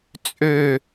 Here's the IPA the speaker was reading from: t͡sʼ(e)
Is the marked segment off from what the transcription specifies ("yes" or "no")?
yes